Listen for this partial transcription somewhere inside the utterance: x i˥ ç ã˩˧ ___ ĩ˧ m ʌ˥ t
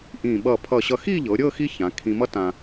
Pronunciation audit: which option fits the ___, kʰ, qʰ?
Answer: kʰ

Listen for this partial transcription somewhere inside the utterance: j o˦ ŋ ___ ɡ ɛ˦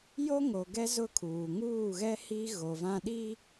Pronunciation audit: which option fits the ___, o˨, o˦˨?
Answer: o˨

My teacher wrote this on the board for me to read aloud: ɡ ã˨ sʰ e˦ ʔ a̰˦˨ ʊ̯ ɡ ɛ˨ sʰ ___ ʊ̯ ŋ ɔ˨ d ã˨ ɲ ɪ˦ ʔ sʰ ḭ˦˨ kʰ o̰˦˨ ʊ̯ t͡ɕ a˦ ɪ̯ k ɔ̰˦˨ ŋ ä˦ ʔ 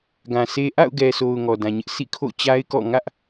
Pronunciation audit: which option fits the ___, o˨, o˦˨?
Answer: o˨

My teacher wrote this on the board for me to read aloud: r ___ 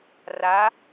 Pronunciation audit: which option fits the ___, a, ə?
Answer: a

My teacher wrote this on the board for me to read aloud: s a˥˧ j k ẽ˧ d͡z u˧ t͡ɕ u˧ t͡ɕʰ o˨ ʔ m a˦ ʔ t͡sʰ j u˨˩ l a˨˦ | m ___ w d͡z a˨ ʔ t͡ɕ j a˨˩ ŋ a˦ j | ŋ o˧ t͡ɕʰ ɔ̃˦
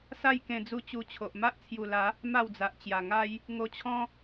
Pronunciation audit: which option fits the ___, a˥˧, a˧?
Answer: a˥˧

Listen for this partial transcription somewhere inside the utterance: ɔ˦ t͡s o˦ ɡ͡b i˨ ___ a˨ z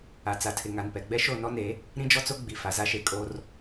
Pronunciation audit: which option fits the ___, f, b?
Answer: f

